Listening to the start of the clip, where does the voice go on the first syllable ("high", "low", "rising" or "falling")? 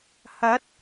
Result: rising